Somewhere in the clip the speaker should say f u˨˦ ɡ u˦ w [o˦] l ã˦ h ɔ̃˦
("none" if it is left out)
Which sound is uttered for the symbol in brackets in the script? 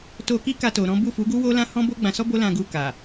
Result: o˦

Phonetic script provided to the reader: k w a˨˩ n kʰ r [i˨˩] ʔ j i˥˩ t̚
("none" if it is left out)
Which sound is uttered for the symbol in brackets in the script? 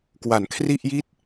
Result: i˥˩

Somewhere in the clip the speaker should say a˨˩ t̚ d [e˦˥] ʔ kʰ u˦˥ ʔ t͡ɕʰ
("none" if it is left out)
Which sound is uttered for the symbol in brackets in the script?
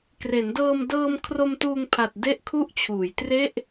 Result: e˦˥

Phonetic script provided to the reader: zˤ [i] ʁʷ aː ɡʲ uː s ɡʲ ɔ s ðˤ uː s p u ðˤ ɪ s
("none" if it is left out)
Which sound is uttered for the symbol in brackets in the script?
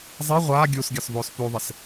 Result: i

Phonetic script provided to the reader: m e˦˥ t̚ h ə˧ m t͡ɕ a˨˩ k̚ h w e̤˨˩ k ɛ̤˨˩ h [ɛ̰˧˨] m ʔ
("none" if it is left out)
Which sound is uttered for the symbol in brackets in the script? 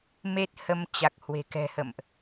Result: ə̰˧˨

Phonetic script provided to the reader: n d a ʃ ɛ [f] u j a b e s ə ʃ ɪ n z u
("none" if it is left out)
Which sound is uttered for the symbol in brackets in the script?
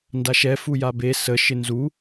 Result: f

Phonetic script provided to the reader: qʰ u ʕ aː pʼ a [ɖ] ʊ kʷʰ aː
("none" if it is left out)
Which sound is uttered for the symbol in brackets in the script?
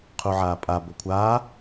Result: b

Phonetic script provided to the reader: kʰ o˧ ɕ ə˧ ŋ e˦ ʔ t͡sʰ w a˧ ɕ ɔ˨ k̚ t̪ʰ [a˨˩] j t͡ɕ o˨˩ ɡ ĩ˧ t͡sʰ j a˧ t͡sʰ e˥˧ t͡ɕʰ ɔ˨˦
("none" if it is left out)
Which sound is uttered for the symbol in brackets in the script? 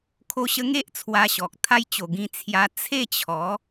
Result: a˦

